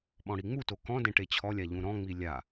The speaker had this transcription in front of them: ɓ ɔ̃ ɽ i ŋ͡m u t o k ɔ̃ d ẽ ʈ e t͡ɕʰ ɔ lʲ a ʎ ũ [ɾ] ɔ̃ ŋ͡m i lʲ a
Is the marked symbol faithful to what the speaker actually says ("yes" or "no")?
yes